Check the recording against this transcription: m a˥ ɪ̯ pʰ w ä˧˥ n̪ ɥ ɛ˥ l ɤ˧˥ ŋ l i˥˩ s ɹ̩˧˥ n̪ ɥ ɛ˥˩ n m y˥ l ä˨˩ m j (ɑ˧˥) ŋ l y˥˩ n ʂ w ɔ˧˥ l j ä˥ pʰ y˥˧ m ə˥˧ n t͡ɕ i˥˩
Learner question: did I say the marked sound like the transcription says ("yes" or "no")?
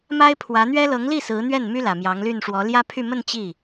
yes